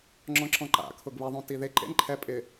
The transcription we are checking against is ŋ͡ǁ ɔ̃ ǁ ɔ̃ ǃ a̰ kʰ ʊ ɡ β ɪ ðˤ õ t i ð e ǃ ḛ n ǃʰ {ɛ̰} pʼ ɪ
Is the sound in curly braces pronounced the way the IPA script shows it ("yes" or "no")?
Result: no